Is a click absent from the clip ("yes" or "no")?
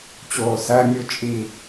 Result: yes